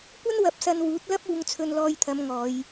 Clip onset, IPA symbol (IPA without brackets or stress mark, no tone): kʷ